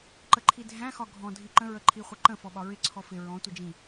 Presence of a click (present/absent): present